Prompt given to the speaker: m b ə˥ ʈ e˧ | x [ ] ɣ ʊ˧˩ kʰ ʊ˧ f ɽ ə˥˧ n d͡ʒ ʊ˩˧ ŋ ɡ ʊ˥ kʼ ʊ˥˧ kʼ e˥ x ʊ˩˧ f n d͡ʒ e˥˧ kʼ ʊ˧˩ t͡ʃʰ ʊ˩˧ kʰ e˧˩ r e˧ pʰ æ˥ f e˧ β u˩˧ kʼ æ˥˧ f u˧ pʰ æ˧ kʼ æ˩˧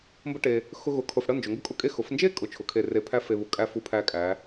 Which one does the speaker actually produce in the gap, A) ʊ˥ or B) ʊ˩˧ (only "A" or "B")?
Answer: A